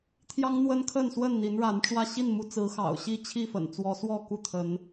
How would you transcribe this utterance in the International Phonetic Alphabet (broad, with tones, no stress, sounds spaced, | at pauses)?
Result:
t̪ʰ j ɑ˦ ŋ n̪ w ə˦ n kʰ ə˥˨ n s w ə˥˨ n n̪ i˨˦ n ɻ a˨˦ n ʈ͡ʂ w ä˥˨ ɕ i˥˨ n m u˨˦ t͡s ɹ̩˨˦ x ɑ̰˨˩ ʊ̯ ɕ i˥˨ t͡ɕʰ i˥˨ f ə̰˨˩ n t͡s w ɔ˨˦ s w ɔ˥˨ k u˥˨ t̪ʰ ə˨˦ n